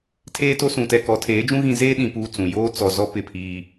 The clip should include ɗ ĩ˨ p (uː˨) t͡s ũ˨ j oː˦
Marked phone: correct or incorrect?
incorrect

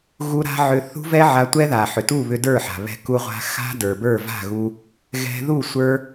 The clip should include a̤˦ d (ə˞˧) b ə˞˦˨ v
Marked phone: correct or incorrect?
incorrect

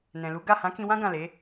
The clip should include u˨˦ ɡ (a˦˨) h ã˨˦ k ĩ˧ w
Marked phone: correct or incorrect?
correct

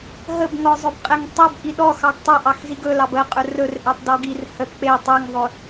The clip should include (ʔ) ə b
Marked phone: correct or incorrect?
incorrect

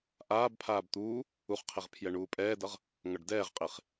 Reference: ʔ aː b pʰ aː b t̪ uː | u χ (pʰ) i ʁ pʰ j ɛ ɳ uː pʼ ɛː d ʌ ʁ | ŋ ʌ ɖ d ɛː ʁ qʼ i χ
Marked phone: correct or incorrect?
incorrect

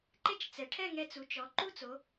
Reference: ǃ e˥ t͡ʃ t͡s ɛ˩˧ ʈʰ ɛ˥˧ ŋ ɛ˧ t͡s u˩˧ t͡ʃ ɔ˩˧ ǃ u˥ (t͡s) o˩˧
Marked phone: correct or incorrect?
correct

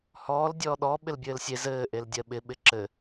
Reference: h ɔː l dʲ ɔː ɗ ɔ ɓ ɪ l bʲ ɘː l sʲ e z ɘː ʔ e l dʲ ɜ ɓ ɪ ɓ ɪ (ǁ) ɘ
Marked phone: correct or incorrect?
correct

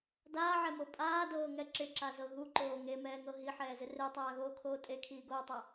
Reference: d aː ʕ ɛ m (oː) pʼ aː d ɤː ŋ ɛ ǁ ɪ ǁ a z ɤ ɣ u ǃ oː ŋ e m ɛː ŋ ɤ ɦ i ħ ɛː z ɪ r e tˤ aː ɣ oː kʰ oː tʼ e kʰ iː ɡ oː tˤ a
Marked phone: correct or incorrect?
incorrect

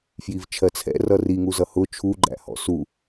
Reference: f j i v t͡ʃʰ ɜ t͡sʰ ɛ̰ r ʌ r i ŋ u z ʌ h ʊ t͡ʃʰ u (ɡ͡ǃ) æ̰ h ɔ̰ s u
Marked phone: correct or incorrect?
correct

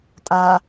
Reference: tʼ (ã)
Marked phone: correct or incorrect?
incorrect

